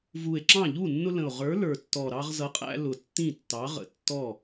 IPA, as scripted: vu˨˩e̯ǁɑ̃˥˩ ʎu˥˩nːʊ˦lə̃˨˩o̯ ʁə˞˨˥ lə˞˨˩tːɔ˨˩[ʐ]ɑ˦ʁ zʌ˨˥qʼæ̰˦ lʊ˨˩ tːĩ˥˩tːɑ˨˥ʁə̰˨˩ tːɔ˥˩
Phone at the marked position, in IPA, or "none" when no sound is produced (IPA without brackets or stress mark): ɾ